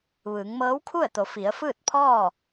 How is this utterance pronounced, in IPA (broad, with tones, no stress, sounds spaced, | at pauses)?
ʋ ɯː˩˧ ŋ m ɤː˧˥ w kʰ u˥˨ ə̯ t̪ o˩˧ f i˩˧ ə̯ f ɯː˥˨ t̚ pʰ ɔː˥˨